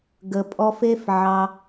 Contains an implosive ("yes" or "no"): no